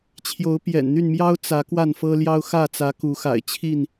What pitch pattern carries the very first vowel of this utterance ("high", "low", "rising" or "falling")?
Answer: rising